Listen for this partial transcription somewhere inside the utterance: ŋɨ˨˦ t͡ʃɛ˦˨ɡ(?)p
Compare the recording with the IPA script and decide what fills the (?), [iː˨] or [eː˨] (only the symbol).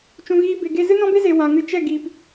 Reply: iː˨